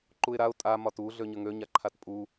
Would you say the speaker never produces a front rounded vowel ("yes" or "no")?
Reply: no